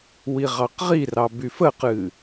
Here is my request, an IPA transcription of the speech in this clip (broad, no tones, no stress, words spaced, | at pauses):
wiʁɑqʁirɑ byfəqɨ